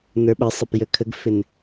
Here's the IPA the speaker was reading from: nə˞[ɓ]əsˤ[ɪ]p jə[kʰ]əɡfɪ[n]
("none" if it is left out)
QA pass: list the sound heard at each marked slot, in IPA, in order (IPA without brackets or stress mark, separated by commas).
ɓ, ə, kʰ, n